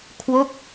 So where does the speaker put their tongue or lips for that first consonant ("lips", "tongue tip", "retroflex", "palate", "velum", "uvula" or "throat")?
velum